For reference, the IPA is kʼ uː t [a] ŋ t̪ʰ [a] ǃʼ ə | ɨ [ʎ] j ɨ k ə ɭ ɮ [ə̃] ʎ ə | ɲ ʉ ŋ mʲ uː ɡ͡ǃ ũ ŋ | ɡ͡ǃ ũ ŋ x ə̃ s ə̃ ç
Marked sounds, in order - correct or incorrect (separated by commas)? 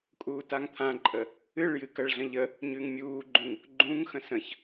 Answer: correct, incorrect, incorrect, correct